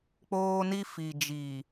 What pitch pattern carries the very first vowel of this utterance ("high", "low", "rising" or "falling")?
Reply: high